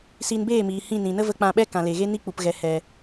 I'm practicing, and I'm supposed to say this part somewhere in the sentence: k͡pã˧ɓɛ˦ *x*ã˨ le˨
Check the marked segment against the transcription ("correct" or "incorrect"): incorrect